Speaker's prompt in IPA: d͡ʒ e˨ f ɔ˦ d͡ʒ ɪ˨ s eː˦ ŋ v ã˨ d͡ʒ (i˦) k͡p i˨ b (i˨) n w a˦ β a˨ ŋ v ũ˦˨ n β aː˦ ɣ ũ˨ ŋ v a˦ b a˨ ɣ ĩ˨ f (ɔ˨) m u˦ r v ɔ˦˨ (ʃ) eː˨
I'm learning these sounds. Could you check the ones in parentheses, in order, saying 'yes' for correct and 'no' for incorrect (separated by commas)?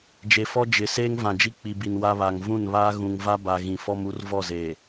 yes, yes, no, no